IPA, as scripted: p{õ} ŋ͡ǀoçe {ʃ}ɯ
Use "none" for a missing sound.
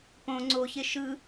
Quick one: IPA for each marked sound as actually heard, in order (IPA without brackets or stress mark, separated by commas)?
õ, ʃ